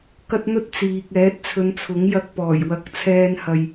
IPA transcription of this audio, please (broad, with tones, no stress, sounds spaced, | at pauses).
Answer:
k ɐ˥ t̚ n̪ ɵ˥ t̚ t͡s iː˨ k̚ ɛː˨˥ t̚ t͡sʰ ɵ˨˧ n t͡sʰ ʊ˨˥ ŋ j ɐ˧ k̚ p ɔː˨˩ j w ɐ˧ k̚ t͡sʰ ɛː˧ n h ɐ˨ j